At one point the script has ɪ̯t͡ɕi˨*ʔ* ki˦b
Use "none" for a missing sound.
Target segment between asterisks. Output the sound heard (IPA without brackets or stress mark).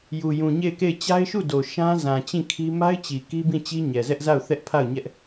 none